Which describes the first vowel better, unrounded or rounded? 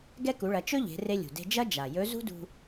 unrounded